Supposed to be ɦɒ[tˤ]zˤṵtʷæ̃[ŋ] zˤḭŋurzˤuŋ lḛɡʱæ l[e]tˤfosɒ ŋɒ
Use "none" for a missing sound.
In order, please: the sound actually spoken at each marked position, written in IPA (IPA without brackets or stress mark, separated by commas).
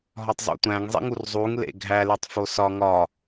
tˤ, ŋ, e